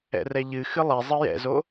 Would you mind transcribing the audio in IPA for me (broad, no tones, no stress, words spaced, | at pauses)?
ɛ̰rɛʎɨ xɨlˠe zˤɨjɛ̰zo